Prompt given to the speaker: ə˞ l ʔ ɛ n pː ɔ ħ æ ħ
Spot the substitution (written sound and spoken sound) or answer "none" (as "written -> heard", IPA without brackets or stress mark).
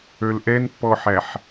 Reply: none